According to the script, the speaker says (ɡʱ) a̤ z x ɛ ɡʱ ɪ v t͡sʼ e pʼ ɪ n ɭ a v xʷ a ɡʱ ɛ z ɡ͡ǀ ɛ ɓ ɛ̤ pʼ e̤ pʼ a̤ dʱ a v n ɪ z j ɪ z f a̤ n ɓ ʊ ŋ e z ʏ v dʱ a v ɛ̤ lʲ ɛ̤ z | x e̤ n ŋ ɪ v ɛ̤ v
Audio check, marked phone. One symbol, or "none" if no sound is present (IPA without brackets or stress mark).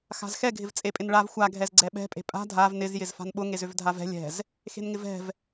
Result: x